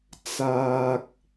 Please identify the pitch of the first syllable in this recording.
low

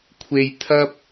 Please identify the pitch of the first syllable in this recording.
low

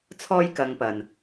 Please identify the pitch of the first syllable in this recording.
high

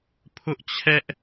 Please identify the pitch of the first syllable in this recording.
high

